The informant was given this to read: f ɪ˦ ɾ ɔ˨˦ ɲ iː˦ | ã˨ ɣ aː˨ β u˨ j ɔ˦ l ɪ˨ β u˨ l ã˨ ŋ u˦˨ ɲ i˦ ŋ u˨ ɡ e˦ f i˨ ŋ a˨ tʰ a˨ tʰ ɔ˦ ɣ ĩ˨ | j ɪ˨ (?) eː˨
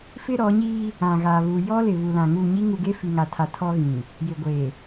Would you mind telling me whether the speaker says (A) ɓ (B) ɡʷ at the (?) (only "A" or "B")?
B